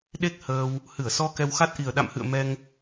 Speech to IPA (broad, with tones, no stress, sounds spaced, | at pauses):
ɗ e˦˥ k̚ h əː˧ w | h ɨ˧˩ ə̯ s ɔ˧ k ɛ˧ w x a˦˥ t̚ ʔ i˨˩ ə̯ ɗ a̰˧˨ m h ɨ̰˧˨ ə̯ m ɛ˧ ŋ